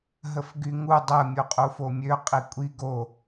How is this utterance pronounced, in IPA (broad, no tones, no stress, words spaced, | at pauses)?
ɦəfɡyŋu dˤə mʲoqʼufomʲø qʼikʷʼi ɡo